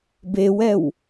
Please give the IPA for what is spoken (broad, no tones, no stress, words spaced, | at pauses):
bewɛw